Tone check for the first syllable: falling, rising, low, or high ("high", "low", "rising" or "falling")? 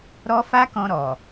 high